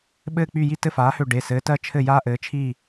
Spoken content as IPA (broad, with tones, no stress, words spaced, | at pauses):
ɓɘː˦˨k͡py˦˨ji˦ tɘ˦˨faː˨˥hø˦˨ ɖe˩˧˩sɘː˨˥ tɜ˦t͡ʃʰɘ˦˨ jaː˦ʔɘː˨˥t͡ʃʰiː˦˨